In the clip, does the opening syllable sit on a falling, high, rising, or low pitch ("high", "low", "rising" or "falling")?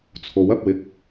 rising